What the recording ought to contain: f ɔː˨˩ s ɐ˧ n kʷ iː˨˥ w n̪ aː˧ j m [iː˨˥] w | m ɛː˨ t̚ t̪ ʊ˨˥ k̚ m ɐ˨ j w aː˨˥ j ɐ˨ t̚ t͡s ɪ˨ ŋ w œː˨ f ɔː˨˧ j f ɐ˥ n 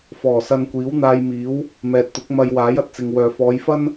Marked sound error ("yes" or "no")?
no